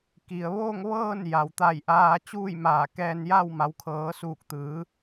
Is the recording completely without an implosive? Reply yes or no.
yes